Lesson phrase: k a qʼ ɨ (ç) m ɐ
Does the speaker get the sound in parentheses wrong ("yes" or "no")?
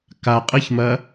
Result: no